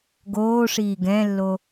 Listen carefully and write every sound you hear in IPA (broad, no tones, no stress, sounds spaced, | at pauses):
ɡ oː ʂ iː ɡ ɛ̃ lː o